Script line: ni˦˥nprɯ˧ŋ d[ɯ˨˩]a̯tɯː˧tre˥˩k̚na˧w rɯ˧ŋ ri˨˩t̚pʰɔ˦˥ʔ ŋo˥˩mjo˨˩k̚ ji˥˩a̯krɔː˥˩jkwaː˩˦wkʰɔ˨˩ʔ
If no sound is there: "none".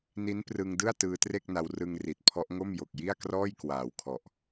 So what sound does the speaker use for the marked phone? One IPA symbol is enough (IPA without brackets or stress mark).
ɯ˥˩